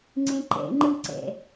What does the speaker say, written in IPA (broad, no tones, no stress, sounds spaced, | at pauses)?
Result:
ŋ͡ǀ ẽ ǃ ɛ̰ ŋ͡ǃ ɯ ǀ ɛ̰